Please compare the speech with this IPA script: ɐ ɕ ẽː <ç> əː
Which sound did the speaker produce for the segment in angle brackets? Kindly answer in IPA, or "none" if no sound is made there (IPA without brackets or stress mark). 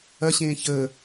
ç